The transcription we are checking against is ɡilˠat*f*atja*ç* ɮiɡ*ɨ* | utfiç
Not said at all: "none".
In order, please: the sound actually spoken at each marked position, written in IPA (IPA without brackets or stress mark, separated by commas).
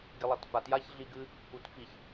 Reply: f, ç, ɨ